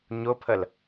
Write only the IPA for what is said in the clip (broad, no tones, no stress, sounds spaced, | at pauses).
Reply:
ɲ ʊ pʰ ə l